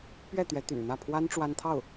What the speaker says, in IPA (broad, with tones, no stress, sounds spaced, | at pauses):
p ɥ ɛ˥˩ t̪ ɥ ɛ˧˥ t̪ y̰˨˩ n n̪ ä˥˩ pʰ w a˥ n ʈ͡ʂ w a˥ n t̪ʰ ɑ˥˩ ʊ̯